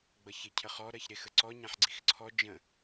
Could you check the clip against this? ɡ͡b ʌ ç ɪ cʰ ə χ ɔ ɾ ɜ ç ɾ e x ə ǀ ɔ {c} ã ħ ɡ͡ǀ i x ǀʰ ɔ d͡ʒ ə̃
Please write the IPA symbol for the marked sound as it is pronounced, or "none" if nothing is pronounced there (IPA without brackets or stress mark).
ɲ